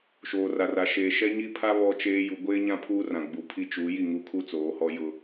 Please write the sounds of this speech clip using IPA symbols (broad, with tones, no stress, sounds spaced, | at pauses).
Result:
ʃ oː˨ r a˨ r a˨ ʃ e˨ ʃ ɛ˦ ɲ i˦ pʰ a˦ β ɔ˦ t͡ʃ eː˦ j u˨ ɡʷ eː˦ ɲ ã˦ pʰ uː˦ r ã˨ ɡ͡b u˨ pʰ i˦ t͡ʃ u˨˦ j i˦˨ ŋ u˦ kʰ u˦ t͡s oː˨˦ h ɔ˦ j ʊ˦